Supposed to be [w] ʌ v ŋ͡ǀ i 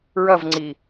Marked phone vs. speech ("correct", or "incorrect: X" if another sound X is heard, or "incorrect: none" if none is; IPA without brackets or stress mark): incorrect: ɹ